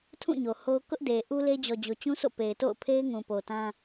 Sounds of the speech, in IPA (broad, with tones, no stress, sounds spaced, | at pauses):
tʰ ũ˦˨ ɲ o˨ h o˦ ʊ̯ k ʊ˦ ʔ d e˨ ʔ u˦ l e˦ d͡ʑ ɔ˨ d͡ʑ o˨ t͡ɕ ũ˦ s o̰˦˨ p e˨ ɪ̯ t o̰˦˨ ʊ̯ pʰ e˦ ɪ̯ ŋ ũ˨ p o˨ t ã˦